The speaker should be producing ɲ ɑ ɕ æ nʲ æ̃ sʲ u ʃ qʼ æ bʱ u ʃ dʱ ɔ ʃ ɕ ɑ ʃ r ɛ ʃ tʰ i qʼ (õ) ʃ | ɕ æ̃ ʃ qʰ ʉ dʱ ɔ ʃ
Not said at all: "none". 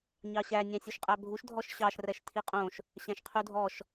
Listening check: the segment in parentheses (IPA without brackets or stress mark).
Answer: õ